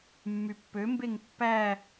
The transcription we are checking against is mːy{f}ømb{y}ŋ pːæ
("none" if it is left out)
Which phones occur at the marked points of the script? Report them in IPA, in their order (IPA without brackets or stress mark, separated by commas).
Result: pː, e